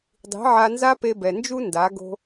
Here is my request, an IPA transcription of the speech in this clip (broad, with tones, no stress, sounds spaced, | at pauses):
dˤ i̤˨˦ ʕ a˧ n z a˦ p e˧ b ɛ˨ n d͡ʒ u˦ n d a˨˦ ɡ o̤˧